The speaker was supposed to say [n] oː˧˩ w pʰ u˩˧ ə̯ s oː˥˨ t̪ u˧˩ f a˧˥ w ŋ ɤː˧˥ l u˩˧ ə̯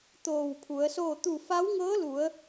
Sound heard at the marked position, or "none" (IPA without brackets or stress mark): t̪